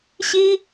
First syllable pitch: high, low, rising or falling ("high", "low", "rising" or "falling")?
high